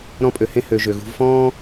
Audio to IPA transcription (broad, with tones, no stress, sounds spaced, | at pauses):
ɾ ɔ̃˦ pʼ ø˧ h ẽ˦ h ø˧ ʒ ø˨ ɣ ṳ˧ v f ɔ̃ː˦